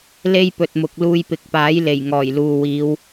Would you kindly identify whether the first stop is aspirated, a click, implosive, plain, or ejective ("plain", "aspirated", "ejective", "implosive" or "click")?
plain